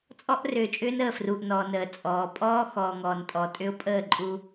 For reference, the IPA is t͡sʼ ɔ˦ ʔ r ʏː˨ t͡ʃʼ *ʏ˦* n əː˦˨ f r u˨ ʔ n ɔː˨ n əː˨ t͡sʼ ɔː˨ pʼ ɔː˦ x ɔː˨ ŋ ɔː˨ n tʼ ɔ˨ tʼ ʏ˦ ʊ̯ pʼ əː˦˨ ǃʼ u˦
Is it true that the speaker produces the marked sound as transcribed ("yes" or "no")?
no